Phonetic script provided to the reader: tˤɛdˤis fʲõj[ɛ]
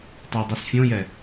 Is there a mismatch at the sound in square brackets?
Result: no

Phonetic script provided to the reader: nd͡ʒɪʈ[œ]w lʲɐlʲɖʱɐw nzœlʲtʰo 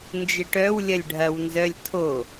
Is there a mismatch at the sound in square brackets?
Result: no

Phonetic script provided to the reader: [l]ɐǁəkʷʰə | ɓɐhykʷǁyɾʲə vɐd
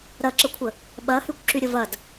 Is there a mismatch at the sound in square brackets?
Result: yes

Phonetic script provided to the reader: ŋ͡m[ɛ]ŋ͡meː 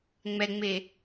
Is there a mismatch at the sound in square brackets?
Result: no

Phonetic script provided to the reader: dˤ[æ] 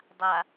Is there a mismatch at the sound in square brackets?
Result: yes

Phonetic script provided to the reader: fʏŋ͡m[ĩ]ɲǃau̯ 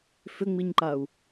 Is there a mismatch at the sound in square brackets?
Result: yes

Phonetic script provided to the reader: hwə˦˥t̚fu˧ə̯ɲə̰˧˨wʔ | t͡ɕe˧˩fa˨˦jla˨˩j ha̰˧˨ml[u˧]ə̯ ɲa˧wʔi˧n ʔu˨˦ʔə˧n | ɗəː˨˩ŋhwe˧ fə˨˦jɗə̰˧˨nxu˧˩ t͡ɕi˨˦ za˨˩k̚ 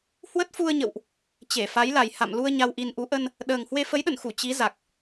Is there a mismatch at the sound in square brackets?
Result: no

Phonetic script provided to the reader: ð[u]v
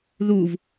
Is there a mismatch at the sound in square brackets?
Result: no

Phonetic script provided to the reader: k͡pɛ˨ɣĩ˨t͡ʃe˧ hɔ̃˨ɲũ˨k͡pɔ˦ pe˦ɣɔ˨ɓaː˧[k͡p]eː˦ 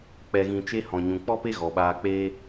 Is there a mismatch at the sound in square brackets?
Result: no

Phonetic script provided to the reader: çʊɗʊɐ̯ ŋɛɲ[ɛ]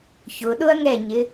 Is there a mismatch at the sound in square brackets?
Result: yes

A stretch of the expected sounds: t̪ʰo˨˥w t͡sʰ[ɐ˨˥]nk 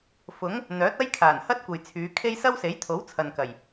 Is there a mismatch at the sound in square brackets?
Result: yes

